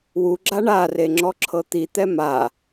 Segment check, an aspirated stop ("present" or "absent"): present